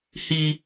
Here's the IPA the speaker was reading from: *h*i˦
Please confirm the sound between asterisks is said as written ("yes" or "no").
yes